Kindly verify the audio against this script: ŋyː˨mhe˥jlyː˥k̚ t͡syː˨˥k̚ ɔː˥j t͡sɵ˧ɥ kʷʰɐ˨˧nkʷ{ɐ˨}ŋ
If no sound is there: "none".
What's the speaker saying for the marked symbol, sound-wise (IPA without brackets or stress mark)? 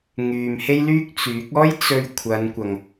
ɐ˨